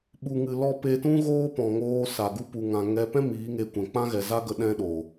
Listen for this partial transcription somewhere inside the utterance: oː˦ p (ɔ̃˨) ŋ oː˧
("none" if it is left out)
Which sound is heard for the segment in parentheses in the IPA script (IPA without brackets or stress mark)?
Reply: ɔ̃˨